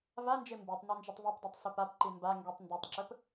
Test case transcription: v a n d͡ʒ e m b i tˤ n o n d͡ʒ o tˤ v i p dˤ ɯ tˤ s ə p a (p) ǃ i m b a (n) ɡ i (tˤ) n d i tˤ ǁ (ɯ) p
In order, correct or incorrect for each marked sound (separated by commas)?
correct, incorrect, correct, incorrect